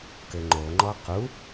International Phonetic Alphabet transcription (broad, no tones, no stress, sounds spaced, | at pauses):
k ɘ ŋ͡ǃ o ŋ͡ǃ ɔ q u